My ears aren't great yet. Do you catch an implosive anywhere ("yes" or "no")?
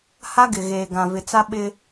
yes